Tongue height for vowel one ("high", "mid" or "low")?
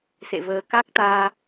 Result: mid